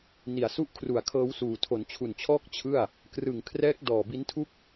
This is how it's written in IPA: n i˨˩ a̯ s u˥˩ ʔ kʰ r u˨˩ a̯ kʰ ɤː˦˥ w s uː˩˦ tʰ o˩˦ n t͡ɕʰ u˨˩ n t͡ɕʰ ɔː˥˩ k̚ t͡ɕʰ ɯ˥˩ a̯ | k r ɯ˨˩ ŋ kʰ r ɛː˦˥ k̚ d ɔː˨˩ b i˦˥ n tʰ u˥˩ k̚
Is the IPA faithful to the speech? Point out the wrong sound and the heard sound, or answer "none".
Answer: uː˩˦ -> uː˨˩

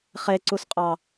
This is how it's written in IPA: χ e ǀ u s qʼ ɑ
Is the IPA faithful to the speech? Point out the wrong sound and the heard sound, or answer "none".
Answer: none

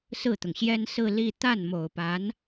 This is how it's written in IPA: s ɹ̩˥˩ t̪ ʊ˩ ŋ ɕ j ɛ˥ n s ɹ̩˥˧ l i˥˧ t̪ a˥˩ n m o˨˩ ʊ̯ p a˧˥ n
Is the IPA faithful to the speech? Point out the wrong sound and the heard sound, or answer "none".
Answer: none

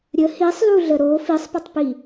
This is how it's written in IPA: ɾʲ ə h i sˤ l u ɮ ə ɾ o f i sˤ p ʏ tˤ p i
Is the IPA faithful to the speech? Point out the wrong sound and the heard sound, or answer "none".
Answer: none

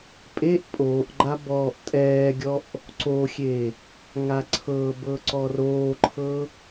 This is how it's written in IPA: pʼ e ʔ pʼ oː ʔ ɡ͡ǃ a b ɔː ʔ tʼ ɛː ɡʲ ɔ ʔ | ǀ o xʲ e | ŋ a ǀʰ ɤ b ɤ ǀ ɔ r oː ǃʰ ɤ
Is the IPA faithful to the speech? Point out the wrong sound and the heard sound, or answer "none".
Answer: none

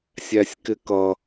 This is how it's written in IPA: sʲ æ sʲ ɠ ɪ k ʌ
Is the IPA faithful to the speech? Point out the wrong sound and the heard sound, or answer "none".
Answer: ɠ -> k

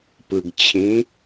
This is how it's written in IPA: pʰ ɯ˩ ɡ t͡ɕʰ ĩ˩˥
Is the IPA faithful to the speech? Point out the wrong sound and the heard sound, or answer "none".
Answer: pʰ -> p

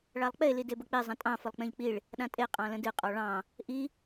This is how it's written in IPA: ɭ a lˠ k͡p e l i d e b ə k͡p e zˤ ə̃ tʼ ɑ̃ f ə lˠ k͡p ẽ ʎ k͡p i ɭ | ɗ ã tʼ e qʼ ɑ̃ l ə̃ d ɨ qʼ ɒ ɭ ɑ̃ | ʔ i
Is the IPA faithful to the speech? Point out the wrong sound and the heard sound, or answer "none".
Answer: none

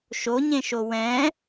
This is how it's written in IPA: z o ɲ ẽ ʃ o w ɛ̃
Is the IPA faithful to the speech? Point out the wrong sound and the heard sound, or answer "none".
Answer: z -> ʃ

